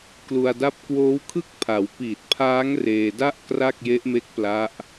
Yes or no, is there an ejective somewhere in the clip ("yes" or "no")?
no